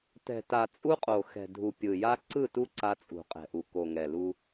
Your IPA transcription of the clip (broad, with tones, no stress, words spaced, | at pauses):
tɛ̤˨ta˨ t͡sʼu˦qʼo˨ xɛ̤˨dʱu˨ pʲɯ˨ja˦ ǀɯ˦˨tu˦ ǀa˦t͡sʼṳ˨qʼɛ̤˨ʔu˨ ko˨ŋɛ˨lu˦